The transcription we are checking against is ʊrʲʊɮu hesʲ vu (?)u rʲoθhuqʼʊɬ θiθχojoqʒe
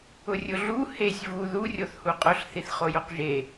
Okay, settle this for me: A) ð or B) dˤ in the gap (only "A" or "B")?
A